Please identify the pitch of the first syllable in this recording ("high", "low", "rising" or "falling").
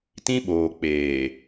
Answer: high